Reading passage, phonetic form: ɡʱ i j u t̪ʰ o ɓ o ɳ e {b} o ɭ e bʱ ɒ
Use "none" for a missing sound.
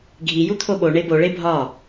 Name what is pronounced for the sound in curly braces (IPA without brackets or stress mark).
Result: b